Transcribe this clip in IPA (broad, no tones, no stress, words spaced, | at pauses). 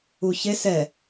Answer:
uçes ɛ